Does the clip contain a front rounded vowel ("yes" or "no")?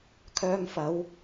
yes